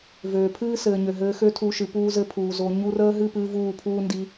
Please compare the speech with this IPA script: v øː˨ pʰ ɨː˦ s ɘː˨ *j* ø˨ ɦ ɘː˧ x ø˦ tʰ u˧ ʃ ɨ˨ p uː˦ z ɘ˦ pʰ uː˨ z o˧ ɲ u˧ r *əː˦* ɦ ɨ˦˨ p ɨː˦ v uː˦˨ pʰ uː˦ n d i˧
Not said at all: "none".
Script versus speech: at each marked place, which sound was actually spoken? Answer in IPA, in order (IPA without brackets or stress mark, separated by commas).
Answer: ɲ, əː˦